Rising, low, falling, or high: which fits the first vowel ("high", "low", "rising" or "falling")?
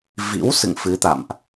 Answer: rising